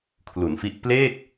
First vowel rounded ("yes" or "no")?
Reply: yes